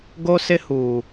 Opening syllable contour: high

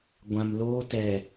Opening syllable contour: low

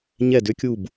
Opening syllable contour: falling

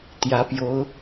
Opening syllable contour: rising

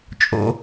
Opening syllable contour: high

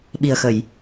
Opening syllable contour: low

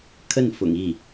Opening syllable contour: falling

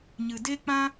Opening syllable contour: low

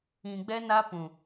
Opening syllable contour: low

